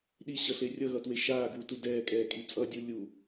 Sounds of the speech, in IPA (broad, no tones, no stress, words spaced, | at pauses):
ɗiɕʌɬe rʲʌɣʌtwe ʃaːɡwutu dɛːkʼɛːkʼi t͡sʼʌdʲu lʲu